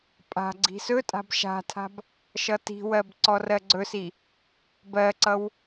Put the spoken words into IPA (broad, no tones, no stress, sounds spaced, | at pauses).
pʼ a̤ ɡ͡ǀ i̤ s ɵ tʼ a̤ b ʃ a̤ tʰ a̤ b | ʃ ʌ t i̤ w ɜ b ǀ ɔ r ɜ ɡ͡ǀ ɵ s i | b ɜ ǀ ʌ w